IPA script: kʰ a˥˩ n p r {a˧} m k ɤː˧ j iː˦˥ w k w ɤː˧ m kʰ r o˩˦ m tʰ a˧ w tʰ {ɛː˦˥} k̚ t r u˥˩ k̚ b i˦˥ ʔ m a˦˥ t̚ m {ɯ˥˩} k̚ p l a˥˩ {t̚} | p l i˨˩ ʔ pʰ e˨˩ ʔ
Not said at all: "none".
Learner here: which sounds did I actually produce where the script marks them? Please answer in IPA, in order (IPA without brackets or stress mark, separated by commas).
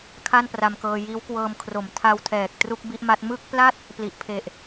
a˧, ɛː˨˩, ɯ˥˩, t̚